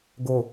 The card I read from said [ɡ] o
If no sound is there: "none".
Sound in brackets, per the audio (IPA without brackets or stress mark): ɡ